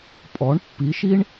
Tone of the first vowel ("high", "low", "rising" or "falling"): rising